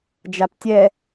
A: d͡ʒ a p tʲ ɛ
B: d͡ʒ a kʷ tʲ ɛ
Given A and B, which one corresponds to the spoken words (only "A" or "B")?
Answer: A